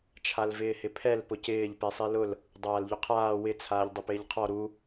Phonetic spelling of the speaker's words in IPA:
t͡ʃʰ a l v ɪː h ɪ pʰ ɛ l p ʊ c ɪː ʎ p e sˤ i l ʊ l | dˤ aː l ʎ ʊ qʰ aː w ɪ t͡sʰ aː ʎ dˤ ʊ p ɪː ʎ qʰ ɔ ɾ u

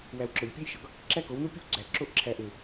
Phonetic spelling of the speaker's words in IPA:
w æ˨ w ǁ ɒ˨ ʎ pʲ e˦ j ʃ ɒ˨ ɡ | ǁ æ˦ k o˨˦ w n u˦ pʲ o˦ w ɡ͡ǀ æ˨ ǁ o˦ ʔ ǁʰ æ˨ ʔ e˨

